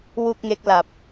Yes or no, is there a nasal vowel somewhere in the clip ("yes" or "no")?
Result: no